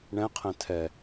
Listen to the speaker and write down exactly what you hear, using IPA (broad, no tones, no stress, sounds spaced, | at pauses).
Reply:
ɳ ɛ̃ qʰ ɛ̃ tʰ ɛ